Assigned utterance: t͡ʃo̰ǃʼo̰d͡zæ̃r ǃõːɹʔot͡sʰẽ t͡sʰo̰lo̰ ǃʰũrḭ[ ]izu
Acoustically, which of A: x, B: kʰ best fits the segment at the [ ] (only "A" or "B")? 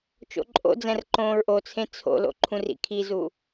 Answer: B